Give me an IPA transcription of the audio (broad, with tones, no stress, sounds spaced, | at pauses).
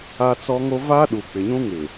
a˦ t͡s ɔ˦ ŋ o˦ v a˦ ɗ u˨ k͡p ɪ˨ ɲ ũ˦ ŋ ɪ˨